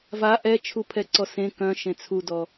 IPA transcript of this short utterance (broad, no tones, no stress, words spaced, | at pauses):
va ʔɛt͡ʃʰupʰɛǀɔ sẽ kœ̃ʃẽ t͡sʰudɔ